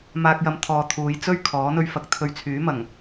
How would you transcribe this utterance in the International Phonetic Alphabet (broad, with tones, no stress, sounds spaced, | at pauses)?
m aː˧ k̚ j ɐ˧ m t̪ʰ ɔː˨ t̪ʰ uː˨˧ j t͡s ɵ˥ ɥ kʰ ɔː˨˥ n̪ ɵ˧ ɥ f ɐ˨˥ k̚ t̪ʰ ɵ˨˧ ɥ t͡sʰ yː˨˥ m ɐ˨˩ ŋ